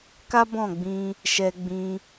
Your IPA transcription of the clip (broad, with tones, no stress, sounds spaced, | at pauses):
k a˦ b ɔ̃˦˨ ɡ͡b ĩ˧ | ʃ ɛ˦ ɡ͡b ĩ˦